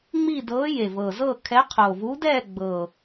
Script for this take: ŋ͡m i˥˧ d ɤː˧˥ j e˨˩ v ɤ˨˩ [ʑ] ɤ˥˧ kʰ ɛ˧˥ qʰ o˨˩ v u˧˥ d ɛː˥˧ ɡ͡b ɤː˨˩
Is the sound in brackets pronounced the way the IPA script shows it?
no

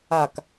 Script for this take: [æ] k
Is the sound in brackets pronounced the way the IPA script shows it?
no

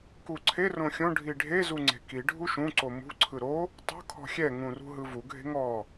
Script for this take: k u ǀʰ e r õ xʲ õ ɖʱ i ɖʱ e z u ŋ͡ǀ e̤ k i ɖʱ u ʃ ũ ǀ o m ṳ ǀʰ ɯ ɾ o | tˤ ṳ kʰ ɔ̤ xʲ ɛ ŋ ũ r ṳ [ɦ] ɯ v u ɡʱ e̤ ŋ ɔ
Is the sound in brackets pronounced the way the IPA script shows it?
yes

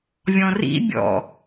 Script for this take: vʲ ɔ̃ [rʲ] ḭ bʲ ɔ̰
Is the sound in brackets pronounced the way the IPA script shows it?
no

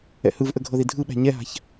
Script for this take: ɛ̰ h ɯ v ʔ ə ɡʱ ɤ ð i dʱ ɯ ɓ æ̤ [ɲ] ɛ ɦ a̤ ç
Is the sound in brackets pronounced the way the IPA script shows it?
yes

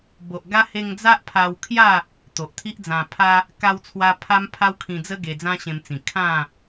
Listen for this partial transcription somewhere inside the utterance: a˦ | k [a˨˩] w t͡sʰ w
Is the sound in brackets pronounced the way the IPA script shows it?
no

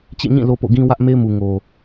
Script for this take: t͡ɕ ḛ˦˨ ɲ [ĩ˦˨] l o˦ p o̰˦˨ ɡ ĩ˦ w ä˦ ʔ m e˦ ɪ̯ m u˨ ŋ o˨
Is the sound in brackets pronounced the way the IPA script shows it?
yes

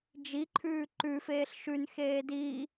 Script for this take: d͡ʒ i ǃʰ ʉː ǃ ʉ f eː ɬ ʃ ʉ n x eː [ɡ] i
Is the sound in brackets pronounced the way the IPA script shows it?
no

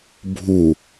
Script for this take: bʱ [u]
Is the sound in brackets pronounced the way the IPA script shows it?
yes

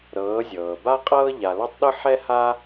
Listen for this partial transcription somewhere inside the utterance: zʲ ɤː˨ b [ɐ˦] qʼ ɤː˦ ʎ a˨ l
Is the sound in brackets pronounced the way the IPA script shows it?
no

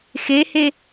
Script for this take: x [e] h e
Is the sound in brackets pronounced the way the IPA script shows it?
yes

